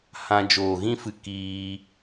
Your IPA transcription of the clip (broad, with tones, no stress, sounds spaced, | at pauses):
h ã˧ d͡ʒ oː˨ ɣ ĩ˦ f ɨ˧ k iː˧